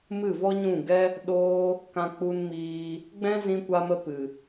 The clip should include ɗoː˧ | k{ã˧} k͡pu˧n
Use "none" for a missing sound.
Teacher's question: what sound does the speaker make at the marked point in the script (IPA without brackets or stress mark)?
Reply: ã˧